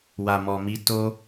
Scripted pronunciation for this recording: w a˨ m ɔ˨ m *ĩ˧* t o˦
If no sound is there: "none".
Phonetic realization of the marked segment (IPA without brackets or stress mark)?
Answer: i˧